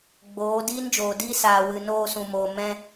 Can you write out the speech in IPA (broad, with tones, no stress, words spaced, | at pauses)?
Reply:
ɡ͡boː˨˦ diː˦nd͡ʒoː˨diː˦ saː˨wɨ˨ noː˧sũ˨moː˨ mɛ̃˧